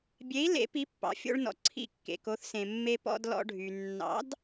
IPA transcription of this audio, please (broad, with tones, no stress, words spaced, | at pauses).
bʲe˩˥i̯ lḛ˩˥pi˩˥pːɑ̰˩ fʲo̰˧ɭ nɔ̰˩ ǀʰḭ˥˩kːḛ˩ko˩˥θsẽ˩ mːe˧ pɔ̰˧dlɔ̰˧ɖʱy˩ nːɑ̰˩˥d